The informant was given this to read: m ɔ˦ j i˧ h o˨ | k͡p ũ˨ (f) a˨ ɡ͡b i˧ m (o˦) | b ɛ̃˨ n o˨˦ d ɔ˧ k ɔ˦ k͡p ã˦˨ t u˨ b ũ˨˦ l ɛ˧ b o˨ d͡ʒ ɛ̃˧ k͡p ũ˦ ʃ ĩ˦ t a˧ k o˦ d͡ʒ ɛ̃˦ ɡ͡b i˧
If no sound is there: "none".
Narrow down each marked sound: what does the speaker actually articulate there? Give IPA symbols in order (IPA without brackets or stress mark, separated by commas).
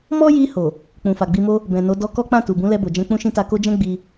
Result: f, o˦